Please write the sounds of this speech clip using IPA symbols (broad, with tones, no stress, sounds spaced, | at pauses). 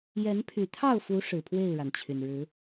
j ɛ˨˦ n pʰ y˨˩ t̪ʰ ɑ˥˨ ʊ̯ f u˨˦ ʂ ɻ̩˨˩ pʰ w e˥˨ ɪ̯ ɻ a˩ n t͡ɕʰ y˩ n ɻ ɻ̩˨˦